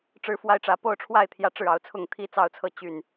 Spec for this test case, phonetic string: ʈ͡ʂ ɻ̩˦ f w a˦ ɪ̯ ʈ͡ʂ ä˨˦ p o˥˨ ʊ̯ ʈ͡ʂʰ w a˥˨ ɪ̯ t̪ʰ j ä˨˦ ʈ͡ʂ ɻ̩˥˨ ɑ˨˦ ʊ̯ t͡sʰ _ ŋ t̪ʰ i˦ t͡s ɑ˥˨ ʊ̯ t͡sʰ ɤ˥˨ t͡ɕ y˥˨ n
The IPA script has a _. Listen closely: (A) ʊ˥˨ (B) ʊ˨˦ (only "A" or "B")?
A